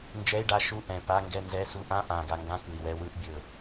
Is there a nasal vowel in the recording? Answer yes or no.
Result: yes